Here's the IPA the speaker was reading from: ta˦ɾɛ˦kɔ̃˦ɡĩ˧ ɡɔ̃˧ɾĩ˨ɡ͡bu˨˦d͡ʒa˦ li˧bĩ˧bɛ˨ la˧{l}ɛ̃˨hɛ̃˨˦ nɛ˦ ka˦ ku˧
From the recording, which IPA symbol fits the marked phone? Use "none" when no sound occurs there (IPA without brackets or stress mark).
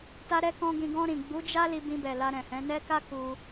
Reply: ɾ